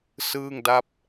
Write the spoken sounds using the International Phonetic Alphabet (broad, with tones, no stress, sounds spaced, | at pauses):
s ɯː˥˩ ŋ d a˥˩ p̚